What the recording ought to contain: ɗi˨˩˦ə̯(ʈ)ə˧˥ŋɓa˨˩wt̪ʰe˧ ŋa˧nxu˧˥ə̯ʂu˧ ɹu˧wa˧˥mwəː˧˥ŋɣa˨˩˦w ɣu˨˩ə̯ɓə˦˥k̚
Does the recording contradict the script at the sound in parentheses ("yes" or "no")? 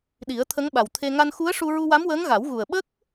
yes